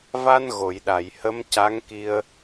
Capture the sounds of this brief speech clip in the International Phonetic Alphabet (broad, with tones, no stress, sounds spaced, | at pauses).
v a˧ n ɣ o˨˩˨ j ɗ a˨˩˨ j h ə˧˥ m c a˧˥ ŋ k i˧ ə̯